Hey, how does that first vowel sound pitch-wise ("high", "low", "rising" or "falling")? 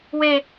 falling